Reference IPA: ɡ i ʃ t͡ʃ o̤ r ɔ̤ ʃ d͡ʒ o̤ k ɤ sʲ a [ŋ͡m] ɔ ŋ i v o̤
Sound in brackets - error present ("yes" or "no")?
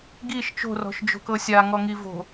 yes